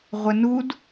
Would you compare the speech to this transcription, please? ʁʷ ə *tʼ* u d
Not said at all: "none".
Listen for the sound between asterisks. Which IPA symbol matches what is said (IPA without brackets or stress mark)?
n